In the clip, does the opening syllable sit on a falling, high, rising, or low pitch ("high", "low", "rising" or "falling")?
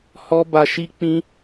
high